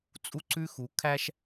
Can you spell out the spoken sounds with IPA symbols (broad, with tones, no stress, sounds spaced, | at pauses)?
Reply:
t͡sʼ u˦ ǀ ʉ˦ x u˨˦ kʰ æ˦ ʃ